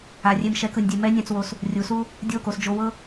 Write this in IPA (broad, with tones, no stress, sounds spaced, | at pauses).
a˨ rʲ e˧ m ʃ ɛ˨˦ k ɯ˨ nʲ dʲ e˧ m ɛ˦ nʲ ã˧ t͡s w o˧ s | rʲ u˨˦ s u˦ | dʲ o˦˨ k o˦˨ s d͡ʒ o˧ w ɤ˦